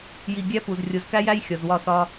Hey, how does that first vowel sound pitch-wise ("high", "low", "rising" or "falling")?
low